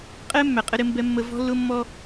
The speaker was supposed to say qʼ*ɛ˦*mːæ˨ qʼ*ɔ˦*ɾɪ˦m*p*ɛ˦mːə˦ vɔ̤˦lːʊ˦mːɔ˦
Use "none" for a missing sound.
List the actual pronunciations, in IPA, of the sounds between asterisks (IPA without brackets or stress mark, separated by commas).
ɛ˦, ə˦, b